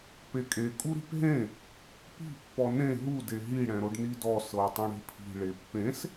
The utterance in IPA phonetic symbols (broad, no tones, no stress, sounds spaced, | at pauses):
p e kʼ e kʼ u ɾ i̤ p ɦ ẽ | p i̤ pː ɔ n ẽ ɦ u d e ɦ i ɽ ɛ̃ ɾ o ɖ n i d ɔ s ɤ ə̯ tˤ ɛ̃ ɽ e̤ pʰ i̤ ɭ e pː ẽ s